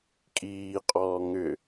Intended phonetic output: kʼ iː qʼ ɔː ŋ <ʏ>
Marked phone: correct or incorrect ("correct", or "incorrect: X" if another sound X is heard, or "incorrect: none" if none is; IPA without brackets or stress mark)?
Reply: correct